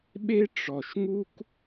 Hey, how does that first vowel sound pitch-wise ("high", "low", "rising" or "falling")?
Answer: high